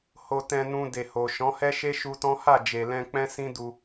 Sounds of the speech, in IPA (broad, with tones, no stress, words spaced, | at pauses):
ho˧tɛ̃˧nũ˧ de˨ho˨ ʃɔ̃˨˦hɛ˦ʃe˦ ʃu˧tɔ̃˦ ha˦˨ d͡ʒe˨lɛ̃˧ k͡pɛ̃˦sĩ˦du˧